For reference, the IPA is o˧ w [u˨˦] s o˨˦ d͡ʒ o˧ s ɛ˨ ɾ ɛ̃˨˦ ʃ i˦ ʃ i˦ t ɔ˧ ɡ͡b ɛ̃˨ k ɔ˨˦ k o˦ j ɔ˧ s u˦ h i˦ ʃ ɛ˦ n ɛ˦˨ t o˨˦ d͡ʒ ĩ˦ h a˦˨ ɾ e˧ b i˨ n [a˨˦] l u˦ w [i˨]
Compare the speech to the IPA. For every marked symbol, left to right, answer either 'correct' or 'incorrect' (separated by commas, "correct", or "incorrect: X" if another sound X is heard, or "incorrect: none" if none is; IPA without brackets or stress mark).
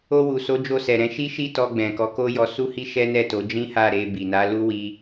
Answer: incorrect: u˨, correct, incorrect: i˦